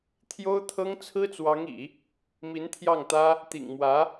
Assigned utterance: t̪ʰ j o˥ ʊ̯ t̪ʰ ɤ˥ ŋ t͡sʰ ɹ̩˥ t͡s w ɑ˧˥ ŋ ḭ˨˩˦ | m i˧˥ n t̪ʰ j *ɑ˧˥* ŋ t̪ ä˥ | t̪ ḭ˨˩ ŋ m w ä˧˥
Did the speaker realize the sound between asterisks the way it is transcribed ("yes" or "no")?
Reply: no